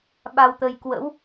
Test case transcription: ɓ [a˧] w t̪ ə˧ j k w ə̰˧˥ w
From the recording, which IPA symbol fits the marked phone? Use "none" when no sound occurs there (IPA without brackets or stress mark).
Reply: a˧